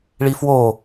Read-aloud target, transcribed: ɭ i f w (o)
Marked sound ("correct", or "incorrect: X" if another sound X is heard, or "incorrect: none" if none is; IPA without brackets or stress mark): correct